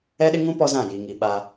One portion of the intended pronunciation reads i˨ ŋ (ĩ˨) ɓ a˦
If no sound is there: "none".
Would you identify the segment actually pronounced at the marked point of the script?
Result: i˨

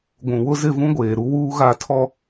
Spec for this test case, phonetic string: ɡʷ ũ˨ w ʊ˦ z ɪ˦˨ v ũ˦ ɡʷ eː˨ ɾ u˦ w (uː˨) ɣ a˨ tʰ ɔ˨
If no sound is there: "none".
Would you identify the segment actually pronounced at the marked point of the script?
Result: uː˦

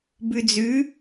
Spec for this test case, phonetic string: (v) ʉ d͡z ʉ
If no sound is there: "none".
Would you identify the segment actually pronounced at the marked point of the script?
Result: b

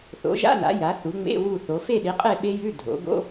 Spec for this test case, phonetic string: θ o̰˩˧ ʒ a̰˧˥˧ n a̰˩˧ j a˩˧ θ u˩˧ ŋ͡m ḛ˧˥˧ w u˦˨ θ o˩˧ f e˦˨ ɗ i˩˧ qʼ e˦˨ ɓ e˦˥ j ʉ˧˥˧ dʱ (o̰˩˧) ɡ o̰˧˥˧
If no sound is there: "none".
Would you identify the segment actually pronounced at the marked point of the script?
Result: o̰˩˧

